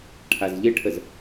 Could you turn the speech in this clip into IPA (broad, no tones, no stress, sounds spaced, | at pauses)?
ʈʰ a z ʎ ɪ ʈʰ ə z